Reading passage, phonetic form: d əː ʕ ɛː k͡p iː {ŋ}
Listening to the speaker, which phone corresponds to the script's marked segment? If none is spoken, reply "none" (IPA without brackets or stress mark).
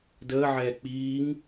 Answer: ŋ